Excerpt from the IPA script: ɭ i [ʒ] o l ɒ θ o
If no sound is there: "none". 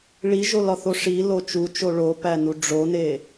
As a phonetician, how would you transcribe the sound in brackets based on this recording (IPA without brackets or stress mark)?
ʒ